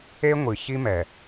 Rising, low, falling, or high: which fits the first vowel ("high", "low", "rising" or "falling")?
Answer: high